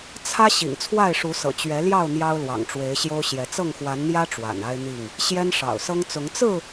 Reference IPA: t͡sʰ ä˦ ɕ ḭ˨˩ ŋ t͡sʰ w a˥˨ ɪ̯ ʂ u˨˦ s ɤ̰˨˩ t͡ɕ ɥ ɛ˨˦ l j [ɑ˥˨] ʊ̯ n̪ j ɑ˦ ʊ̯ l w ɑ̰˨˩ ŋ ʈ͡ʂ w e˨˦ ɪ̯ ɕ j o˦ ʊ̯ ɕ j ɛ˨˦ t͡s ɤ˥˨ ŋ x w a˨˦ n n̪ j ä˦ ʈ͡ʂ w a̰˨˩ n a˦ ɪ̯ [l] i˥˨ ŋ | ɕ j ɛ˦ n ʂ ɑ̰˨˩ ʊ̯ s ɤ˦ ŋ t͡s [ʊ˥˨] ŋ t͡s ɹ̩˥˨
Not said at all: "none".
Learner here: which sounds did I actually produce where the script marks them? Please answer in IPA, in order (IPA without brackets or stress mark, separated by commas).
ɑ˥˨, n̪, ʊ˨˦